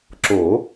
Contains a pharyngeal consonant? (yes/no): no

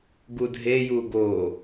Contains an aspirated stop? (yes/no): no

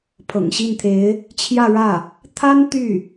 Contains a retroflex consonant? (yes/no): yes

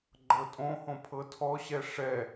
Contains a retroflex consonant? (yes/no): yes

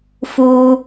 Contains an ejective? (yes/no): no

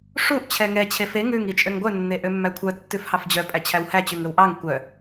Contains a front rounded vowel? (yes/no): yes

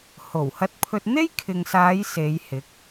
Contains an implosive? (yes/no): no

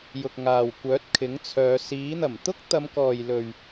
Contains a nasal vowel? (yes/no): no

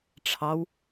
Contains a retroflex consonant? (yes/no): yes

